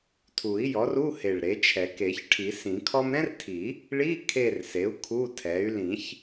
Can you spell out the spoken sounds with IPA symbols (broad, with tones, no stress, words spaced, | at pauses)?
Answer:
tʰu˨˩˦i̯jɔ˩˥ru˧˥˧he˨˩ɭ ɾe˩˥t͡ʃʰɛ˨˩˦k e˨˩˦ç ʈʰi˨˩˦sĩ˨˩˦kʰɔ˥m ɾɛ̃˥rtʰi˨˩˦ | ɭi˧˥˧ kʰe˦˨rse˩˥u̯ kʰu˧˥˧tʰɛ˩˥y̯ lĩ˨˩˦ç